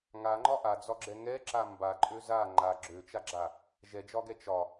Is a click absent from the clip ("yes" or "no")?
no